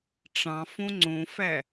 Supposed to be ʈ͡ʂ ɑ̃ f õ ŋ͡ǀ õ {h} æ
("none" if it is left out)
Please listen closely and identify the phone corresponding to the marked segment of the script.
f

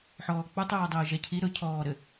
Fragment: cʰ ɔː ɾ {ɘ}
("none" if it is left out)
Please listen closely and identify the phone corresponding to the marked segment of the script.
ɘ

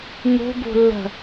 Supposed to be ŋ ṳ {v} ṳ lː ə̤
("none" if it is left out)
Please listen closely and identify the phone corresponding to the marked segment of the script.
b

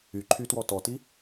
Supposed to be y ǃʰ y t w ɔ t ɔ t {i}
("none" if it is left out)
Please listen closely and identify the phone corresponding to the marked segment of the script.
i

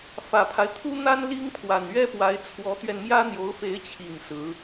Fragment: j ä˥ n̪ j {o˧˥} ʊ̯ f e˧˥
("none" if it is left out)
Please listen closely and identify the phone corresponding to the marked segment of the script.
o˧˥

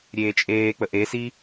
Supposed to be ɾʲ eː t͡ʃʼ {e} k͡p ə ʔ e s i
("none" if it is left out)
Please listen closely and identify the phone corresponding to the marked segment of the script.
eː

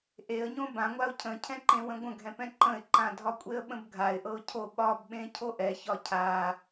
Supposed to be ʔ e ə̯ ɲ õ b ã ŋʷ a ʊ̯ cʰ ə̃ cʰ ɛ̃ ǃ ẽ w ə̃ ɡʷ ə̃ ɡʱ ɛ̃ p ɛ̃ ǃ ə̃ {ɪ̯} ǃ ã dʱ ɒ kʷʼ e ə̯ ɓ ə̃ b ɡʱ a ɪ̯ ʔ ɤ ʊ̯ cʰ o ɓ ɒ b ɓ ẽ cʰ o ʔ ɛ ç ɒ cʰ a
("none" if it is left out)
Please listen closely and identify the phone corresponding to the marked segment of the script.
ɪ̯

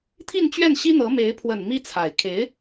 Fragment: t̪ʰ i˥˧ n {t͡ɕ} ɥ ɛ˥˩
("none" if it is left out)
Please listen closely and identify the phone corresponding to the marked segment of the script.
t͡ɕ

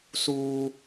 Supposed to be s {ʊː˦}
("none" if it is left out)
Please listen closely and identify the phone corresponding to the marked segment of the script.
uː˦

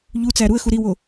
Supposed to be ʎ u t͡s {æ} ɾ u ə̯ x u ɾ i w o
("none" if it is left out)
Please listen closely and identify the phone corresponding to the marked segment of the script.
æ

